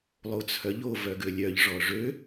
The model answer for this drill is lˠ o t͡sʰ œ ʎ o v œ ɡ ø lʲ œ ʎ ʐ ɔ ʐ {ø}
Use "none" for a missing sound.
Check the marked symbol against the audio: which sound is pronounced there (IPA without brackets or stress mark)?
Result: ø